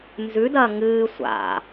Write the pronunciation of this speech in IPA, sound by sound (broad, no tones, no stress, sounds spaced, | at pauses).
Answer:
n z ʉ d ɐː ŋ ɨː sʷ a̰